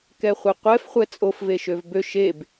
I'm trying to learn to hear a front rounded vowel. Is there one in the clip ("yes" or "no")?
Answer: yes